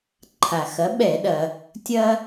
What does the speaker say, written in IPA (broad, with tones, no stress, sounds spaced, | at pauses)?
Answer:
ǃʰ a˩ x ɐ˩˥ ɓ ɛ˧˩˧ ɗ ɐ˩ | tʲ ɐ˦